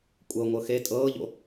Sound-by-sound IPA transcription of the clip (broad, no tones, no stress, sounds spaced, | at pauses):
kʷʼ ɤ ŋʷ ɤ x e tʼ ɤː ʎ o̰